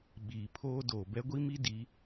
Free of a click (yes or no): yes